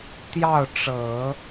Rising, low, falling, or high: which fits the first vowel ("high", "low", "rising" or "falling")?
falling